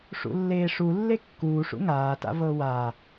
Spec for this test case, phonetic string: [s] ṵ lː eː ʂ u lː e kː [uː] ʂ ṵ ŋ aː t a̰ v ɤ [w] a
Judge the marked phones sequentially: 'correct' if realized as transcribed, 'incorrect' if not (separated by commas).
incorrect, correct, correct